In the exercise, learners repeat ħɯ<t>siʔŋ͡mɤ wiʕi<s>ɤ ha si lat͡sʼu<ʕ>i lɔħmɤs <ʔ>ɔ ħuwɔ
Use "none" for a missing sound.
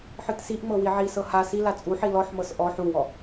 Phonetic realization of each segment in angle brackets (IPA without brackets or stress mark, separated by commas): t, s, ħ, ʔ